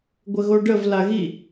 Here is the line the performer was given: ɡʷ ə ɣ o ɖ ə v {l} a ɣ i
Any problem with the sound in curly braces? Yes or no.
no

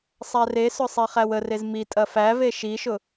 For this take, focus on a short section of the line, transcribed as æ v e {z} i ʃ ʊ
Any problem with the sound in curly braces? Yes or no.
yes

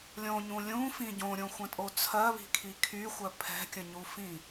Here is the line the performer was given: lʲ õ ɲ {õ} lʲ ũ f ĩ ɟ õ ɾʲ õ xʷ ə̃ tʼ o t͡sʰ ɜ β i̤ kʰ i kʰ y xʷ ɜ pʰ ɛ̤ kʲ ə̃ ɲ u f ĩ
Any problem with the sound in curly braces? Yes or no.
yes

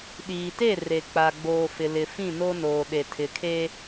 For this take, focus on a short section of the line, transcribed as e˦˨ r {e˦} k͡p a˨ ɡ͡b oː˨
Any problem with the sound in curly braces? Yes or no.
yes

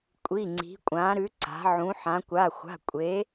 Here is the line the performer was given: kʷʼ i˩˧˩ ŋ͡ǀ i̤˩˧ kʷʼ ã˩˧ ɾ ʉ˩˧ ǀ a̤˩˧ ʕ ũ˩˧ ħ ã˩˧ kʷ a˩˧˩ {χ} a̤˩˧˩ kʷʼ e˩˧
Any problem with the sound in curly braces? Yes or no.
yes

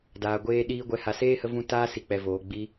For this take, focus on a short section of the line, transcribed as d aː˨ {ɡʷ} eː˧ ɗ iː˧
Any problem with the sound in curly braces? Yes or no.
no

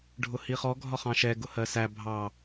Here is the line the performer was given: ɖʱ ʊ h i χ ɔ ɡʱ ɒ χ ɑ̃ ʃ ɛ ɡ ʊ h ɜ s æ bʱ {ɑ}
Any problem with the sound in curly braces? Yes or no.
no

